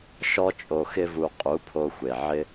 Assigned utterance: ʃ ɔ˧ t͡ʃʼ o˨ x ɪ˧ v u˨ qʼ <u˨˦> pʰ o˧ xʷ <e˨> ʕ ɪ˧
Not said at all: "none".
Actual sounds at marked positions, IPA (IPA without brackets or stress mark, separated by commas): u˨˦, e˨